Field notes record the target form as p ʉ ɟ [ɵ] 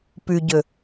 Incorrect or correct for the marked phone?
correct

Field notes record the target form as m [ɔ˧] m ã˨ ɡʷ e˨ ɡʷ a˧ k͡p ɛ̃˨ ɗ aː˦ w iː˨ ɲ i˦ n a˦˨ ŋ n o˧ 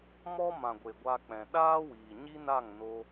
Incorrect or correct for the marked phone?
incorrect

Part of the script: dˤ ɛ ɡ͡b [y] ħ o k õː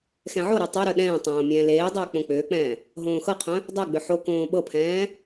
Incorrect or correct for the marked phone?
incorrect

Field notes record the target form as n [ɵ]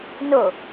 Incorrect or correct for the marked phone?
incorrect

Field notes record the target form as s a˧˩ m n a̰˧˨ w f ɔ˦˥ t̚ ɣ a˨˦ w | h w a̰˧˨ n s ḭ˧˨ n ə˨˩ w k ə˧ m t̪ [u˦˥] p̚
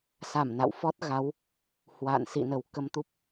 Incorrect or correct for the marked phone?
correct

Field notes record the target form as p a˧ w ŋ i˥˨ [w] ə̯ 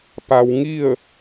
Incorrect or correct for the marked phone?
incorrect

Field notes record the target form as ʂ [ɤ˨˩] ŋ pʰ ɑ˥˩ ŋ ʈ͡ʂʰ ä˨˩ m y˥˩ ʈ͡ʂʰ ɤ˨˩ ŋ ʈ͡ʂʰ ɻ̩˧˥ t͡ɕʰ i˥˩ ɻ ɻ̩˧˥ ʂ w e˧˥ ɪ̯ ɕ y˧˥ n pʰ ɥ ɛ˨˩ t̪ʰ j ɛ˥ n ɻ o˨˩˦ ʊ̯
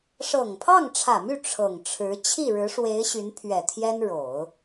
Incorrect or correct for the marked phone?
correct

